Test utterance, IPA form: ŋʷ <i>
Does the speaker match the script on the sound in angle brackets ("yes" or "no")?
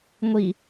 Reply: yes